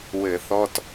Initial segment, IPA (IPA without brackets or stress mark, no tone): w